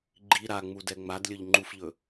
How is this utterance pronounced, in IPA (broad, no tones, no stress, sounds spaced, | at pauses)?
ɡ͡ǃ i ɾ a ŋ͡m u d ɛ ŋ͡m a d lʲ ɵ ʎ ŋ͡ǃ u f ʎ ɵ